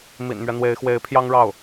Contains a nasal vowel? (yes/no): no